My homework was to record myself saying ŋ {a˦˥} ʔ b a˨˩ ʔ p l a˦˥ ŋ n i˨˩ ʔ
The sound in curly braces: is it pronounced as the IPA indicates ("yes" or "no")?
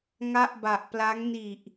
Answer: no